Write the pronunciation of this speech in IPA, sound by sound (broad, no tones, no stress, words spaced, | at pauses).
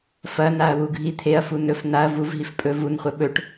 fɐnaɐ̯ wuɡʱit̪ʰeɐ̯fu nɵf naɐ̯ vuvɦif pʼɵ vunχʷɐ ɓɵʈ